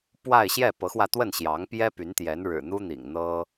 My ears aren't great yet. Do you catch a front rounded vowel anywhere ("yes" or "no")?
yes